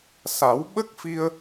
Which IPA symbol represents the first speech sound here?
s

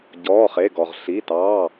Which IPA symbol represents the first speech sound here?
ɟ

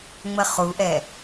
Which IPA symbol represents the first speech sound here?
ŋ͡m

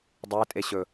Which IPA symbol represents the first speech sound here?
dˤ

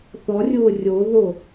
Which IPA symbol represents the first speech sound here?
θ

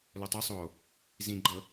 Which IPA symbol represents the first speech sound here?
l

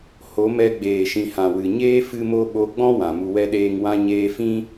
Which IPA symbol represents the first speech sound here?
h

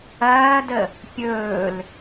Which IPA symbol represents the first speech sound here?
ɐː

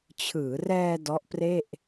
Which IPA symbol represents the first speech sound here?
t͡ɕʰ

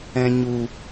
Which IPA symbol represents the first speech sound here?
ɛ̃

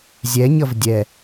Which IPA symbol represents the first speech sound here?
zʲ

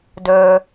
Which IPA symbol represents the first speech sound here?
d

